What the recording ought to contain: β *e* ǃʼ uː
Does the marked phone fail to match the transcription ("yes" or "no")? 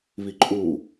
yes